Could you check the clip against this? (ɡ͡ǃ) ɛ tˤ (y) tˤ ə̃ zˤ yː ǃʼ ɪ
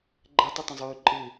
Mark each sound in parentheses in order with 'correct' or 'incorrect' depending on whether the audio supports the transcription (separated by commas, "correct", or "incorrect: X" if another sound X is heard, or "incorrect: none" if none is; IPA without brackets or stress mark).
correct, correct